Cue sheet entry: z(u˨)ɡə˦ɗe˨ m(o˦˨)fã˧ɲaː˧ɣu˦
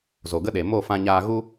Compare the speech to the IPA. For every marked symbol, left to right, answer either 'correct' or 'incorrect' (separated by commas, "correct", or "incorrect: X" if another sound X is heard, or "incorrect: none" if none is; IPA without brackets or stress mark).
incorrect: o˨, correct